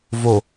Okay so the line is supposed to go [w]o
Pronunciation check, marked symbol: incorrect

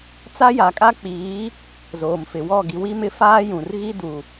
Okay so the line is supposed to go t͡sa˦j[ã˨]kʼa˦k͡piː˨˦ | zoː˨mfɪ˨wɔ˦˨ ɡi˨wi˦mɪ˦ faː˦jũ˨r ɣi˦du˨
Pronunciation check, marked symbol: incorrect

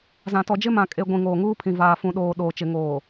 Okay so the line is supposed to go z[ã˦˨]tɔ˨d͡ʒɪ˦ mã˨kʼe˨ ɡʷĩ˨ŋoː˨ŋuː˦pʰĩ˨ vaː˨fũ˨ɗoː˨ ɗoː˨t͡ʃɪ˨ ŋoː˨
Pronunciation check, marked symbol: incorrect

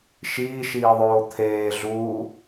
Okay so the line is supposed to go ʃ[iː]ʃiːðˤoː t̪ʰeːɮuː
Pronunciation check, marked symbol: correct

